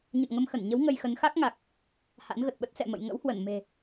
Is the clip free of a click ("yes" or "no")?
yes